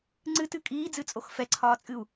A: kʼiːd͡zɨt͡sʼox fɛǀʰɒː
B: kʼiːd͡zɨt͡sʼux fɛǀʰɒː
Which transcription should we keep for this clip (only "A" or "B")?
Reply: A